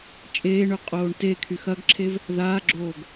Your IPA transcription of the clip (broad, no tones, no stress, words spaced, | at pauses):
t͡ʃʼeːɳø qʼoːɳtekʰy xɐɡǁʰev | ðaːɡ͡ǁoːɡ